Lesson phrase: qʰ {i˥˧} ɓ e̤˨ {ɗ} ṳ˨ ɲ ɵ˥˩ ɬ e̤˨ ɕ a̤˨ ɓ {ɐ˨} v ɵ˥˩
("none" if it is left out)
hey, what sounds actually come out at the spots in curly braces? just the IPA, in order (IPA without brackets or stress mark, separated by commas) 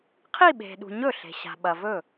i˥˧, ɗ, ɐ˨